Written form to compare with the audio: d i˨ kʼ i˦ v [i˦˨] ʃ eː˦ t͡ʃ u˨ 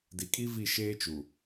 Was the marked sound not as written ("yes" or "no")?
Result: no